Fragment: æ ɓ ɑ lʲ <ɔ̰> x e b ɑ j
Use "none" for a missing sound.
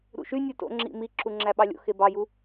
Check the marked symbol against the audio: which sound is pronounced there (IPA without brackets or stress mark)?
o̰